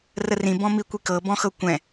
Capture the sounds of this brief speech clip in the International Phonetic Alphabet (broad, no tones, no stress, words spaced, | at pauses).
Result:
rərĩ bɔ̃mikʷikɤ bɔ̃xɤkʷɛ̃